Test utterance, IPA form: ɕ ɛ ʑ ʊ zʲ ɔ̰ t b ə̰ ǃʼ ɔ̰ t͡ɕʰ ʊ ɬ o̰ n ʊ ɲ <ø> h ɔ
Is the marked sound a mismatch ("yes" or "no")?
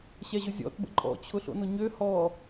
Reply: no